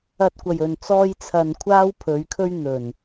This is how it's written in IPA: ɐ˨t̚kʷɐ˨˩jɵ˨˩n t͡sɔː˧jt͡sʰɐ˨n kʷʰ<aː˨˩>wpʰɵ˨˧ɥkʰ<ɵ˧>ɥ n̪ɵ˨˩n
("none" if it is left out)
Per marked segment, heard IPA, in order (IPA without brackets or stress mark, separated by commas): aː˥, ɵ˥